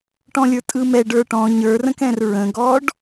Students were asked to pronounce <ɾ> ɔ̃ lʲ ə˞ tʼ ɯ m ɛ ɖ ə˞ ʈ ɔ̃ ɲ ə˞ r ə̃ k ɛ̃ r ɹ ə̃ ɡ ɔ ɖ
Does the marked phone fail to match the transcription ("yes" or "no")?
yes